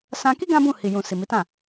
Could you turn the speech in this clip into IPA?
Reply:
s ã˧ k i˦ ɡ ã˦ b ũ˦˨ h i˨ j ũ˨ s i˨ m i˨˦ t ã˦˨

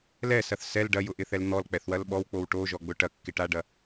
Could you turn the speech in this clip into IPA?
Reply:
l ɛ s ɐ θ s ɛ l ɖ ɐ j ʊ ʔ ɪ θ ɛ l n̪ ɔ l k͡p ɛ θ w ɐ l ɓ ɔ w k͡p o w ʈ o ʒ ɔ ɡ͡b ʊ ʈ ɐ kː ɪ ʈ a ɖ ɐ

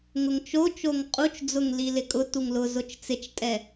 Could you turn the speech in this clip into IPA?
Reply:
ŋ ʊ ŋ t͡ʃ o t͡ʃ o ŋ qʼ u t͡ʃ d͡z ʊ ŋ l i l ɪ kʼ ʊ t u ŋ l ʊ z ʊ t͡ʃ t͡s ɪ t͡ʃ tʼ ɛ

